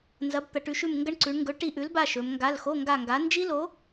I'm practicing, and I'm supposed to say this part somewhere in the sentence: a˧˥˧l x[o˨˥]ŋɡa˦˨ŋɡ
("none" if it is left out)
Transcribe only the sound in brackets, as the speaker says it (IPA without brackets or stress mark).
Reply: o˧˥˧